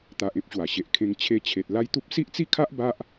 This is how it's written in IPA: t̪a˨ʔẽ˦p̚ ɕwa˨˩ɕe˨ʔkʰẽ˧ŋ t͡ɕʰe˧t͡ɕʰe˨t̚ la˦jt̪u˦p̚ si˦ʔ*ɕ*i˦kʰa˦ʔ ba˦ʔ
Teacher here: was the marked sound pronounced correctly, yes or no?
no